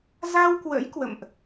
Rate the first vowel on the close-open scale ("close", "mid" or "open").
open